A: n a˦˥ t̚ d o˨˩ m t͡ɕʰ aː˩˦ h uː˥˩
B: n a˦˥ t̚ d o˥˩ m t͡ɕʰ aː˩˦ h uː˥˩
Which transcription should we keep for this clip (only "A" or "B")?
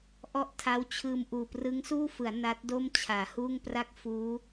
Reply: B